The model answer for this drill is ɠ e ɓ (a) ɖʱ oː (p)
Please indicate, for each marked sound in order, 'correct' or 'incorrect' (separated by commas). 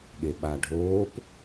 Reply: correct, correct